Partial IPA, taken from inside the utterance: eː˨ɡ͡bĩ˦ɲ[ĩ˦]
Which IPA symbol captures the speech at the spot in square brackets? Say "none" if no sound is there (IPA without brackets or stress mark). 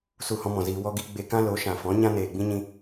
ĩ˧